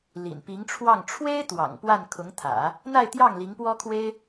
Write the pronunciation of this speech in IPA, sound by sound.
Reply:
lḭ˨˩npi˧˥ŋʈ͡ʂʰwɑ˥˩ŋ ʈ͡ʂʰwe˥ɪ̯ t̪wɑ̰˨˩ŋpwa˥˩nkʰʊ˧˥ŋt̪ʰä̰˨˩˦ | n̪a˥˧ɪ̯t̪jɑ˥˩ŋ li˧˥ŋpwɔ˥kʰwe˥ɪ̯

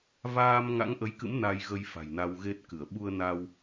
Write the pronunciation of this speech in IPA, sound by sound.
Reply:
vaː˧m ŋa̰˧˥ŋʔə˨˦jkɨ̰˧˥m na˧jɣə˧j fa̤˨˩jna˧wɣe˦˥t̚kɨ˧˩ə̯ ɓu˧ə̯na˧w

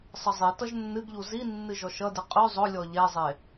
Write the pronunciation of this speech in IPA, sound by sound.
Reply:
sˤəzˤitʌʒ nːɨɡʎu zinːɨ ʒɔʃʌdɨ qʼʉ zˤʊlʲɔ ʎɛzˤe

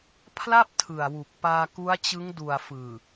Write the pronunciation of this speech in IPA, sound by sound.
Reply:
pʰla˥˩p̚tʰɯ˨˩a̯wu˨˩k̚ paː˧ku˦˥a̯t͡ɕɯ˦˥ŋ du˨˩a̯fɯː˨˩

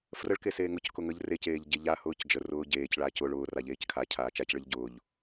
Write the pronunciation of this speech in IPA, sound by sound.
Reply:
frəɭke seːŋʊckʊ ŋəʎ receːʎ ɟeʎahʊːc d͡ʒərʊː ɟeːcɭaːc ʊɭ ʊːra ʎeːckʰacʰaː t͡ʃacɭəʎ ɟʊːʎ

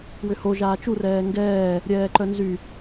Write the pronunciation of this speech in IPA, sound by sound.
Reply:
wʏho ʒaːt͡ʃu rɛːŋɡɛː | ɾʲɛːǃœnzy

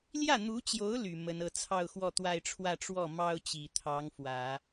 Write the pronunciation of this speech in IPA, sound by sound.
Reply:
ljä˥˩n̪u˧˥t͡ɕjo˧˥ʊ̯ ly˨˩mə˧˥nɤ˧˥ t͡sʰɑ˥˧ʊ̯xwɔ˥˧t̪wa˥˧ɪ̯ʈ͡ʂʰwä˥˧ ʈ͡ʂwɔ˥˩mɑ˥ʊ̯t͡ɕi˨˩ t̪ʰɑ˧˥ŋ fwä˨˩˦

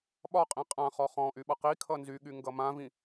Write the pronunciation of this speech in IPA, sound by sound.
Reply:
ɓɒqʼĩ qʼãχɔ χɔ̃ʔy ɓʌqikʰʌ nzyɠy ŋɡʌmãvĩ

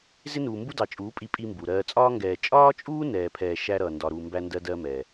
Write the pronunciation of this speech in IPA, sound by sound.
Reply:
zɪ˦nuː˨ mbu˦dɑ˨t͡ʃʼuː˨˦ pʼi˦pʼi˦mbu˨ ɾɜː˨t͡sʼɒː˦ŋɡɛː˨ t͡ʃʼɒː˦t͡ʃʼuː˦ nɛː˨pʰɛː˨ ʃæ˦ ɾʌː˨ ndɒ˨ɾuː˨mbæ˦ndɜ˦ dɜ˦mɛː˨

